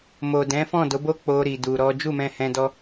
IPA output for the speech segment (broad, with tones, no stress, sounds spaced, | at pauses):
m o˨ d ɛ̃˨˦ f ɔ̃˦˨ d o˨˦ b o˦ k͡p o˦ ɾ i˧ d u˧ ɾ ɔ˦ d͡ʒ u˦˨ m ɛ̃˧ h ɛ̃˧ d ɔ˧